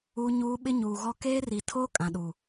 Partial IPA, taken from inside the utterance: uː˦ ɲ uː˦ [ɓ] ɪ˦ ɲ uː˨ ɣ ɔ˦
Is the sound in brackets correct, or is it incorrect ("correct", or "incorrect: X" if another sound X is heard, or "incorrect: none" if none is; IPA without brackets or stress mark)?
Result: correct